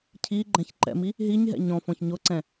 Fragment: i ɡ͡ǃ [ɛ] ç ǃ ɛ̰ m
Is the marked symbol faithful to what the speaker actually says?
no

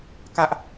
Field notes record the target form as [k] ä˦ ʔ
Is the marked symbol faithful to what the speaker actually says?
yes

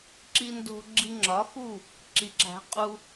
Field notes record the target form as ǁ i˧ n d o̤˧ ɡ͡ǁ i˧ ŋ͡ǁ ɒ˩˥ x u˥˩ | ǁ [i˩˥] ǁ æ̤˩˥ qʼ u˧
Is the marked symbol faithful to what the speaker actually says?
yes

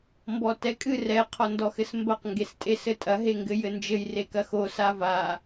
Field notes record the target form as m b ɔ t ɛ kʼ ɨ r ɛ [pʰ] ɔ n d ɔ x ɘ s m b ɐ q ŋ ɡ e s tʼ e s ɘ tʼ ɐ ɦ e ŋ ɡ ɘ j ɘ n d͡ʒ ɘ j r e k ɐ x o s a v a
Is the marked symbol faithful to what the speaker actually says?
no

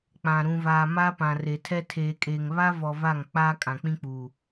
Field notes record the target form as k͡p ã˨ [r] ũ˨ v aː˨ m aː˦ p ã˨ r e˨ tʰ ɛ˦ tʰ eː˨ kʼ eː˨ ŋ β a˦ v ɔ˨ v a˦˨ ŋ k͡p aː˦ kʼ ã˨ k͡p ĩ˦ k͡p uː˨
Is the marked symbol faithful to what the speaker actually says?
no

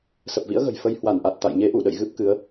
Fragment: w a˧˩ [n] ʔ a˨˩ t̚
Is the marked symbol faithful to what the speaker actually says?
yes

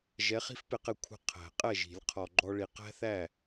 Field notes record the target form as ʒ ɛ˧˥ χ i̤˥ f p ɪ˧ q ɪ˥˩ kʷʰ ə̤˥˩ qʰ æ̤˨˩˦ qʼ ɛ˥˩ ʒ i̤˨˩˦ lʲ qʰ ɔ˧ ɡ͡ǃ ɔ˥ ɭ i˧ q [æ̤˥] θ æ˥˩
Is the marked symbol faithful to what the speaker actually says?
yes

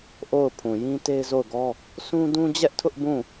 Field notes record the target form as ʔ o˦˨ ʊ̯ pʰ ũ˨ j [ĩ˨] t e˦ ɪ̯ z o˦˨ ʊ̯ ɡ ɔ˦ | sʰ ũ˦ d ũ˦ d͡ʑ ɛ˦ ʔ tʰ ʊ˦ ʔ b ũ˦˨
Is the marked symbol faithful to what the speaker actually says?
no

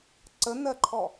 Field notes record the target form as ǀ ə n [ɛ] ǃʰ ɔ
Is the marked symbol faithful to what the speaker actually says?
no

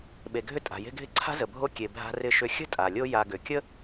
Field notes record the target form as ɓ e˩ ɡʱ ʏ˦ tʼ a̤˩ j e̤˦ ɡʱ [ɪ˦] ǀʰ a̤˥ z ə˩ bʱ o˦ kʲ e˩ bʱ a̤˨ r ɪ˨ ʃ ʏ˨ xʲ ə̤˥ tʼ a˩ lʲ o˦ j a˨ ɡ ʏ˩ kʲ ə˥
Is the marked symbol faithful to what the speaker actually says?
yes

